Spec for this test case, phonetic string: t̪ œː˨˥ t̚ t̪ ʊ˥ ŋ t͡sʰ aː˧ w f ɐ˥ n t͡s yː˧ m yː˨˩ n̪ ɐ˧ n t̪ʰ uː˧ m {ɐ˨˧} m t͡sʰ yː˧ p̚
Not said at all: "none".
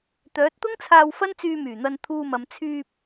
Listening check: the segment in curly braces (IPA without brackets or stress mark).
ɐ˨˧